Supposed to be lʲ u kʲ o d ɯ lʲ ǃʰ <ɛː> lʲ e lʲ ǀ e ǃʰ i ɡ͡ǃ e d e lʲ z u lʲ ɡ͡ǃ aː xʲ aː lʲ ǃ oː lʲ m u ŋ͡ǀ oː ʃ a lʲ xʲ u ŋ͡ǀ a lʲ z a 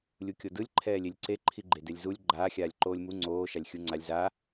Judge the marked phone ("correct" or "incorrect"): correct